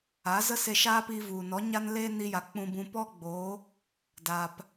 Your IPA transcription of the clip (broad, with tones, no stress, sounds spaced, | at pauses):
a˨˦ z ə˦ s e˧ ʃ a˦ p i˧ v u˨ n ɔ˨˦ ɲ a˦ n l e˦ n i˧ j a˨ k͡p ũ˧ b ũ˧ p ɔ˦ ɡ͡b oː˨˦ | d aː˨ p